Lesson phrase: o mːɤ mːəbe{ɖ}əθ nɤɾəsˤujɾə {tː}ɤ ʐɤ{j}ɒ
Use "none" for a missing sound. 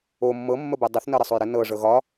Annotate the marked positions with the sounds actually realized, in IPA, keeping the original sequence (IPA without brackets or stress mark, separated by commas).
dˤ, n, ɣ